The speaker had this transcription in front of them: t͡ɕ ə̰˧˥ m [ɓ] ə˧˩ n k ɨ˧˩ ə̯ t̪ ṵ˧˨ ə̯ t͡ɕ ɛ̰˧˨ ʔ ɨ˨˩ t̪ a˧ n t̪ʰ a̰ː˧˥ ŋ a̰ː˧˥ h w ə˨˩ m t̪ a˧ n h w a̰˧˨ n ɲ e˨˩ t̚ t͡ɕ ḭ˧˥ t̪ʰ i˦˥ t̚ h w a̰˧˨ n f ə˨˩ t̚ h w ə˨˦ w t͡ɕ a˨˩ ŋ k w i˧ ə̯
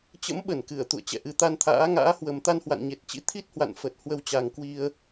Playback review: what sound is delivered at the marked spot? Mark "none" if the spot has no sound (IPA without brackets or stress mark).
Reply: ɓ